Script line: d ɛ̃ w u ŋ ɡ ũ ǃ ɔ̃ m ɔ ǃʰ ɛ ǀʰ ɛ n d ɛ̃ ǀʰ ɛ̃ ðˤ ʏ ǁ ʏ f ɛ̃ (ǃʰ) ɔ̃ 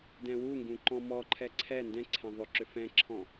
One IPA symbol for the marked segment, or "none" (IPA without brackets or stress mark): ǁʰ